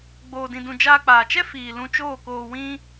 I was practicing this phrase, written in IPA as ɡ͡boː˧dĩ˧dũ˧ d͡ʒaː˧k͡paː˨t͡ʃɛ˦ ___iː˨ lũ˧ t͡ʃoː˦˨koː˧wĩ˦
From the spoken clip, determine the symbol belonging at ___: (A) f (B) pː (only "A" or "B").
A